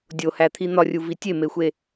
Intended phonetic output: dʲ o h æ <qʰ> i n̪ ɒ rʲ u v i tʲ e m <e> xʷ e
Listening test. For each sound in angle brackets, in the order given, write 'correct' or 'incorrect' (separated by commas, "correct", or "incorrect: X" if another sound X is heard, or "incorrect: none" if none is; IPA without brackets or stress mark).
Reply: incorrect: t̪ʰ, correct